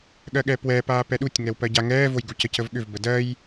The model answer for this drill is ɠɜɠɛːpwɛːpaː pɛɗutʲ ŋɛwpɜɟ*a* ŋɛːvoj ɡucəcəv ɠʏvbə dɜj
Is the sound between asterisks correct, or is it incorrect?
correct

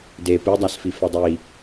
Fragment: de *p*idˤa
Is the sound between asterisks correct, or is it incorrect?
correct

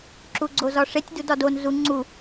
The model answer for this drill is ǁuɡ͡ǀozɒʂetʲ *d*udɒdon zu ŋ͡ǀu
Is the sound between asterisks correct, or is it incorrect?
correct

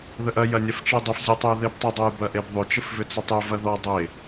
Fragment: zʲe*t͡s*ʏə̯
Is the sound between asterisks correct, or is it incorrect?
incorrect: tˤ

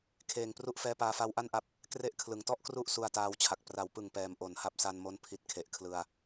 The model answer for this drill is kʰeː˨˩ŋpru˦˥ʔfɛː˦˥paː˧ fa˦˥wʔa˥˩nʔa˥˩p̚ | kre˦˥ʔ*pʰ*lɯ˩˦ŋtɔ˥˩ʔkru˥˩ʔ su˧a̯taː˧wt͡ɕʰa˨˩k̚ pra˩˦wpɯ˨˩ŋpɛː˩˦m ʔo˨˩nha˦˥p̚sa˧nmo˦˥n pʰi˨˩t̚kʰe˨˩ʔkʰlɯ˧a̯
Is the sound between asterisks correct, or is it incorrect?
incorrect: kʰ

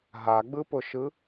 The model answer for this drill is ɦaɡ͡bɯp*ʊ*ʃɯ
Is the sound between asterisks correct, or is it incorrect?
correct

